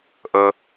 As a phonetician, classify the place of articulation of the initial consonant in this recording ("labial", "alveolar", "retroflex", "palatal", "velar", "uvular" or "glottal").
glottal